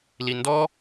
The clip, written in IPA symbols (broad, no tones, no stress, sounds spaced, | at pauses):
l i n d ɔ